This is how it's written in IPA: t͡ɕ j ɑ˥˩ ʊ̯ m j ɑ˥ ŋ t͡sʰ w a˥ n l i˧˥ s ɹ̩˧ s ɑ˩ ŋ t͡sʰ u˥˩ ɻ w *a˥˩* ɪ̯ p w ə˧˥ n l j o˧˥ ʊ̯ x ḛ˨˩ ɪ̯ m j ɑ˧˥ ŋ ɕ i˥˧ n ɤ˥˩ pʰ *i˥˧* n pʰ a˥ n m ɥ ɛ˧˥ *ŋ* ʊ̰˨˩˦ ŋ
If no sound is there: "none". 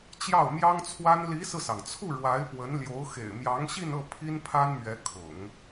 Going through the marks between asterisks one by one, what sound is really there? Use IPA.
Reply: a˧˥, i˥, kʰ

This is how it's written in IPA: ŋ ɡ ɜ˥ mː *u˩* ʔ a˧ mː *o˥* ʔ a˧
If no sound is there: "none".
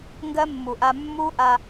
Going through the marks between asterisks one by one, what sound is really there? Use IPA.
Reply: u˩, u˥

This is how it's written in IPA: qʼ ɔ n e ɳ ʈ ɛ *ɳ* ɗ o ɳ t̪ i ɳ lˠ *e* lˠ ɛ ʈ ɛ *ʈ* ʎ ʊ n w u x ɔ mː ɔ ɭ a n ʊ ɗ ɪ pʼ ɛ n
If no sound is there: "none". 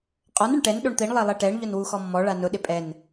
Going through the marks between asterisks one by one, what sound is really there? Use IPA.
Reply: n, e, ɳ

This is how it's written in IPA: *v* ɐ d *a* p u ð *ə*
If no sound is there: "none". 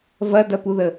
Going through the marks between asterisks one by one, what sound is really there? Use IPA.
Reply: v, ɐ, ə

